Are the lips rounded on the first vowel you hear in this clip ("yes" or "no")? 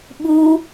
yes